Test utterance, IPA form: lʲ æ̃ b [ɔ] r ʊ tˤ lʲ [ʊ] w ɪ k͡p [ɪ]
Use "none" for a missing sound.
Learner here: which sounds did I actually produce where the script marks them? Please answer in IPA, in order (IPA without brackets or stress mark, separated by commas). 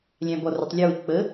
ɔ, ə, ə